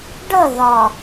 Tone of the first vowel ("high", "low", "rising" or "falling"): falling